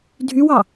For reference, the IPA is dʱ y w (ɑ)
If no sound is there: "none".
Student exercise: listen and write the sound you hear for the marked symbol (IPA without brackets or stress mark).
ɑ